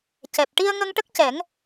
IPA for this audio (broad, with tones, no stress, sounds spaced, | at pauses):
c ɛ˨˩ p̚ ʈ i˧ ə̯ ŋ ə˧ ŋ ʈ ə˦˥ k̚ c ɛ˨˩˦ ŋ